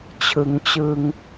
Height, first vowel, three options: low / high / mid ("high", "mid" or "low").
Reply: high